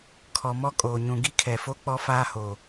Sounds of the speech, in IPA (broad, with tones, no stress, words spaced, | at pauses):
kʰɔ˨mɔ˦kʼoː˨ ɲũ˨ɡi˦kʰɛ˨fo˦ k͡pɔ˦faː˦ho˨